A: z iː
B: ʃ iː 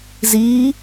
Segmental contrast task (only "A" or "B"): A